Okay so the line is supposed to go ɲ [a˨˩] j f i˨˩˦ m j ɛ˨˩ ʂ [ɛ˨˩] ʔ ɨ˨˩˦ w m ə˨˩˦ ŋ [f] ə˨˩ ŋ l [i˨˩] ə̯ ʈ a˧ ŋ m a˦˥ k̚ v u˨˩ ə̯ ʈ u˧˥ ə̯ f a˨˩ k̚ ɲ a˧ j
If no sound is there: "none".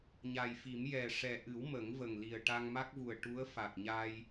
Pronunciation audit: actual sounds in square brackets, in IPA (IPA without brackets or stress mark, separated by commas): a˨˩, ɛ˨˩, v, i˨˩